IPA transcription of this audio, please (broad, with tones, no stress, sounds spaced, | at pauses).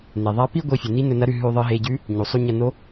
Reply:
n e˩ ðˤ a˧˥ p i˥ ɡʷ i˧ fʲ ɵ˩ n i˧˥ n ɵ˧ n ɐ˧˥ ɾ ʉ˧ ɦ ʉ˧ ðˤ ɨ˧ ɦ e˧ ɟ ʉ˧˥ | ɲ u˩ sˤ u˧ ɲ ɐ˧ n o˧˥